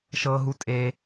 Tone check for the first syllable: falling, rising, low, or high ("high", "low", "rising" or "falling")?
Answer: low